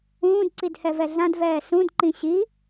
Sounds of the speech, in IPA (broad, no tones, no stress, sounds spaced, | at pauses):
ũː d ǀ i d h ɛ v ɛ ɮ ã d v ɛː s ũ d ǃ ĩ ɕ i